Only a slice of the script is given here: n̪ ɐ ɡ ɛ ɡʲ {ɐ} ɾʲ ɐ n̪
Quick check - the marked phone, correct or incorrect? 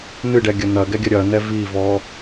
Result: correct